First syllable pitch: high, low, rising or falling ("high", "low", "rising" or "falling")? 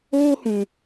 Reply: high